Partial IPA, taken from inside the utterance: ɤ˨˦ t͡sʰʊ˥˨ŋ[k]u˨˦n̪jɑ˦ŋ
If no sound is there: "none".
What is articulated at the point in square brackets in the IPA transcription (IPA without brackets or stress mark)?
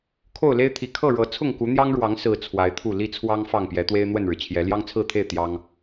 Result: k